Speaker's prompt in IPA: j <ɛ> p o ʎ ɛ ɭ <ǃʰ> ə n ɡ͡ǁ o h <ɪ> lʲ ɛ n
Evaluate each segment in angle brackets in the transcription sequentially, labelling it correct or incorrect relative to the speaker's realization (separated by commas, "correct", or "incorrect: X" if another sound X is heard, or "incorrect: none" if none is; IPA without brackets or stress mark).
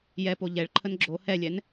correct, correct, incorrect: ɛ